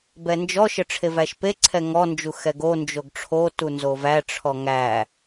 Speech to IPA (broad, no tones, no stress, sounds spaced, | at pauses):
b ɛ n d͡ʒ ɔ ʃ ə ʈ͡ʂʰ e v æ ʃ p e ǀʰ ɛ ŋ ɔ n d͡ʒ u x ɛ ɡ o n d͡ʒ o ɡ ʈ͡ʂʰ o t u n z o v æ ʈ͡ʂʰ ɔ ŋ æ